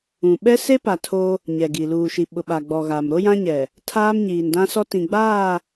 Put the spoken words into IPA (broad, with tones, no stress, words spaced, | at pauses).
ũ˨ ɓɛ˦se˦pa˨ tʰo˦ | ɲɛ˨ɡi˨ luː˨ʃi˨ ɓʊ˨ɓa˨ ɡ͡bɔ˨ɣa˨m ɾo˦jã˦ ɲɛ˨ | tʰaː˦mɲiː˨ndã˦sɔ˦ tĩ˨ɡ͡baː˦˨